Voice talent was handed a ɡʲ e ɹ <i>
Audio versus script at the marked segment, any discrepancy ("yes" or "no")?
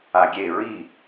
no